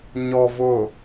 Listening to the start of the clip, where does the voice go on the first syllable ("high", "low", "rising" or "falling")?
low